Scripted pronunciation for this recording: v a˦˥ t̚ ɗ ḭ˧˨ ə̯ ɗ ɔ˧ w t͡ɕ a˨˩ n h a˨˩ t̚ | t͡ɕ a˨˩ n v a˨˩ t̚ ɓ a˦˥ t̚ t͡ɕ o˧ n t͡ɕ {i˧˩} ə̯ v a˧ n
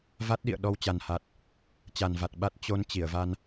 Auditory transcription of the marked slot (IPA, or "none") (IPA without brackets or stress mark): i˧˩